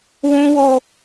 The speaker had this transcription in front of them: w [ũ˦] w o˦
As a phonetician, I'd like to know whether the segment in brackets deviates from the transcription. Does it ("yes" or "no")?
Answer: no